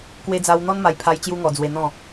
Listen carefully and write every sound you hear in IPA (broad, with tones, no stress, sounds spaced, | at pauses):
k w e˧ d͡z a˧ w n̪ ɔ˦ n m a˧ j pʰ a˧ j t͡ɕ j u˦ ŋ ɔ˧ d͡z w e˧ n̪ ɔ̃˥˧